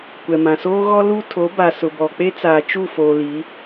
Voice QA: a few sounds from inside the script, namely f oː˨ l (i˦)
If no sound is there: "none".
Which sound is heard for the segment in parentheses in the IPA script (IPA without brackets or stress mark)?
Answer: i˨˦